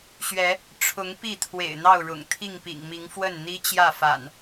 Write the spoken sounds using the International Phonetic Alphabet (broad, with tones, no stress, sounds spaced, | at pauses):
ɕ ɥ ɛ˨˦ | ʈ͡ʂʰ ʊ˨˦ ŋ p i˥˨ t̪ʰ w ḛ˨˩ ɪ̯ n̪ ɑ˥˨ ʊ̯ ɻ ʊ̰˨˩ ŋ t̪ʰ i˥˨ ŋ p ḭ˨˩ ŋ m i˨˦ ŋ f w ə˥˨ n n̪ i˦ t͡ɕ j ä˥˨ f a̰˨˩ n